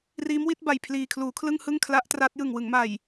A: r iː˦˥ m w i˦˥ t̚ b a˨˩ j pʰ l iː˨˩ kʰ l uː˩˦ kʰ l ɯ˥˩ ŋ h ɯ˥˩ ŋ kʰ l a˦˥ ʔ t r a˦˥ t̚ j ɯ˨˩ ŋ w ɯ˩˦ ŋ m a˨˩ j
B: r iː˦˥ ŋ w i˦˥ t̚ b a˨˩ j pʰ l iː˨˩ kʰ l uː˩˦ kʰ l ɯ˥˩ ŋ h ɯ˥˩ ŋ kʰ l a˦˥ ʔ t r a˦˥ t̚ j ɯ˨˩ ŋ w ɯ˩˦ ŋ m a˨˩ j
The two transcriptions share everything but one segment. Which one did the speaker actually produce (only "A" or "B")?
A